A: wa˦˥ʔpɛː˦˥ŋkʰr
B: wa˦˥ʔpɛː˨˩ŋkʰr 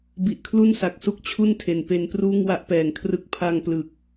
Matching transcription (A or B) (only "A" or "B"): B